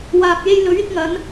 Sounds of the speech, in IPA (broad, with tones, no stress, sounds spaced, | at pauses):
w aː˨ p̚ j e˧ j l ɵ˨˥ ɥ ɪ˨˥ k̚ ŋ ɐ˨˥ n